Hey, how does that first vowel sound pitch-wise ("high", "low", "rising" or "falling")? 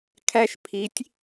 high